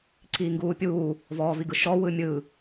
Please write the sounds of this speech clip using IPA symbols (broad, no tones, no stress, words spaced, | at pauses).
ǀiːŋɡuːpʲuː | vɔːviɡɯʃɔ wɯmʲɯ